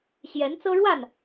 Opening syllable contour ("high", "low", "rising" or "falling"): rising